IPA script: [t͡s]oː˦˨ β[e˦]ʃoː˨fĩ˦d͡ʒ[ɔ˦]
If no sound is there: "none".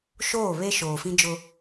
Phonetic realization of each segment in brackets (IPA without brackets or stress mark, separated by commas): ʃ, e˦, ʊ˦